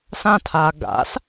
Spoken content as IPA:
s ã tʰ aː ɡ a̰ s

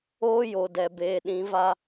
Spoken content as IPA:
oː˦ j o˨ d ɛ˨ b eː˨ ɗ ĩ˨˦ v a˦

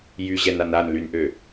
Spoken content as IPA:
j y ʑ ɛ n a n a n l y n ʔ ø

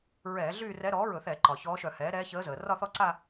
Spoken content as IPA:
ɹ ɛː˧˩˧ ɮ yː˥˧ r ɛ˧˥ ɾ ɔː˩˥ ɹ ɵ˧˩˧ θ ɛ˧˩˧ ǃ ɒ˩ ç ɔː˧˥ ʃ œ˧˩˧ h ɛː˩˥ ɾ ɛː˧˥ ç əː˧˥ z əː˩ r ɒ˥˧ θ ɔ˥˧ ǀ a˥˧

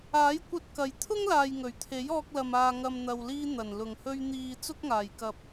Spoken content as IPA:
aː˨˥ j kʷ ɐ˧ t̚ k ɐ˨ j t̪ʰ ʊ˥ ŋ l aː˨ j ŋ ɵ˨˩ ɥ t̪ʰ e˨˥ j ɔː˧ k̚ l ɐ˨ m aː˨ ŋ ɐ˨ m n̪ ɐ˨ w l iː˧ n̪ ɐ˨˩ n l ʊ˨˩ ŋ h ɵ˧ ɥ n̪ iː˨ t͡s ʊ˥ k̚ ŋ aː˨˩ j k ɐ˨ p̚

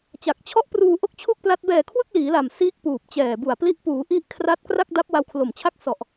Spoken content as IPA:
t͡ɕ a˨˩ k̚ t͡ɕʰ ɔ˦˥ ʔ p r uː˧ ʔ o˥˩ k̚ t͡ɕʰ u˥˩ k̚ p l a˦˥ t̚ b ɛː˨˩ kʰ w ɯ˥˩ k̚ l iː˩˦ l a˨˩ m s iː˥˩ k̚ p uː˨˩ p̚ t͡ɕ ɛː˨˩ b u˨˩ a̯ p l i˦˥ ʔ p uː˩˦ ʔ i˦˥ ʔ kʰ r a˦˥ t̚ k r a˥˩ k̚ d a˦˥ p̚ w a˦˥ w kʰ l o˨˩ m t͡ɕʰ a˥˩ k̚ s ɔ˨˩ ʔ

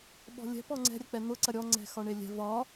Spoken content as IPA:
ɓ ɔ̤ lʲ ɛ̤ p ɔ ŋ͡ǀ ɛ̤ ɾʲ ɐ k͡p ɛ n̪ ʊ ǀ ɐ ɾʲ ɔ ŋ͡ǀ ɛ̤ x ɒ ɳ e lʲ ɛ̤ v ɒ

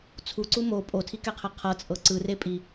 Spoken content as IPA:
t͡sʰ u ǀ u m o pʼ o tʰ i k ɛ qʰ ɛ qʰ ɤ t͡sʼ ɤ ǀ ɯ r e pʼ i

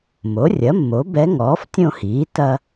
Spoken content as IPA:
m o˩˥ rʲ ɐ˩˥ mː o˩˥ b ɛ˧˥ ŋ ɔː˩˥ f tʲ õ˥˧ h iː˩˥ t ɐ˥

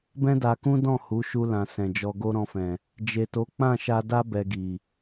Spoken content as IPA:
b ɛ̃˦ d a˧ k ũ˦ d ɔ̃˦˨ h u˨˦ ʃ u˧ l ã˨ s ɛ̃˨ d͡ʒ ɔ˧ ɡ o˦ ɾ ɔ̃˧ f ɛ̃˨ | d͡ʒ e˨ t o˨˦ k͡p ã˦˨ ʃ a˧ d a˦ b ɛ˧ ɡ i˨

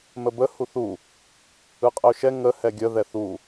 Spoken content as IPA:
m ə b ə h u θ u | ɯ qʼ ə ʊ̯ ʃ ɛ ŋ ə h ɛ ɡʲ ə ð ɛ θ u

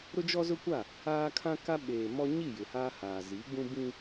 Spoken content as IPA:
ɾ ʊ˦ d͡ʒ ɔ˦ z ʊ˦ kʷ a˦˨ | aː˦ kʰ ã˦ k a˦ ɓ eː˨ m ɔ˦ ɲ i˦˨ j ɪ˨ h aː˦ h aː˨ z i˨˦ ɡ͡b ũ˦ b ĩ˦

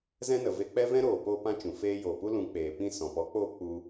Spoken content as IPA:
z ɛ̃˦ n ə˨ v e˧ k͡p ɛ˦ v ɛ̃˦ ɾ oː˨ p oː˧ p ã˧ t͡ʃ ũ˨ f eː˦ j oː˨ p u˦ l ũ˨˦ k͡p eː˨ p ĩ˦˨ s ɔ̃˨ p ɔ˨˦ k͡p oː˦ k͡p u˧

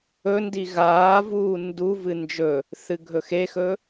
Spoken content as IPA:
ɵ n d i ɣ aː v uː n d u v ɨ n d͡ʒ ɵ | θ ɨ ɡʱ ɵ x e x ɵ

